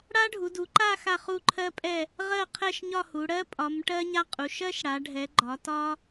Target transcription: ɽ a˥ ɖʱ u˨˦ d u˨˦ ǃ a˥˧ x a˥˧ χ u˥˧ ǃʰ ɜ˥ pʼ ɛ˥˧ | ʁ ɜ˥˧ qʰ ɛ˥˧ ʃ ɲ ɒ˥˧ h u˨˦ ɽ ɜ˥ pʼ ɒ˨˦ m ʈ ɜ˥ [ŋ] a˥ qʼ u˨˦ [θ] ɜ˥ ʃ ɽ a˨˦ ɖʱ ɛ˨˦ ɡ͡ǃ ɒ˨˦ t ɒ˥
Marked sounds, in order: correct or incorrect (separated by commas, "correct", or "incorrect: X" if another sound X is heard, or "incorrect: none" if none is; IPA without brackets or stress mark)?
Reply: incorrect: ɲ, incorrect: ʃ